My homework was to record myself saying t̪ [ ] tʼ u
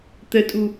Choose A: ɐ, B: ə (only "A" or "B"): B